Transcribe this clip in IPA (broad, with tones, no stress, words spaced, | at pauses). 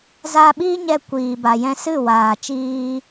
zaː˧ɓiː˦ɲɛ˧ kʷiː˨ba˨jɛ̃˧sɨ˦˨ waː˨t͡ʃiː˧